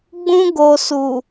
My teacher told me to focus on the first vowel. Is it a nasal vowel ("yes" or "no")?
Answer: yes